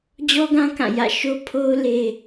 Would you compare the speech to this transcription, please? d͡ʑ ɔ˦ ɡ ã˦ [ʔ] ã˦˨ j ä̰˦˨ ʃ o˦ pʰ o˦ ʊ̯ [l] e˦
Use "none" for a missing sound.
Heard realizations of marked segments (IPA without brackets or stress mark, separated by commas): k, l